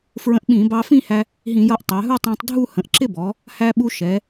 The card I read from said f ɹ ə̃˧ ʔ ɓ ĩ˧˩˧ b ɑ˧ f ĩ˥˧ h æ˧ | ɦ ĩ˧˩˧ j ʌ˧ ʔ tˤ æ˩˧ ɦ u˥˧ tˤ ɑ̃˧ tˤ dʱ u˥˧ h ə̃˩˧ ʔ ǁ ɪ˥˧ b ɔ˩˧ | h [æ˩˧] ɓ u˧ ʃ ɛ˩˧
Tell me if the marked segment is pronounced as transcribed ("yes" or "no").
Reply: no